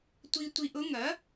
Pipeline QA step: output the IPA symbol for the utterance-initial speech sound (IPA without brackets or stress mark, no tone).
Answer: tʷ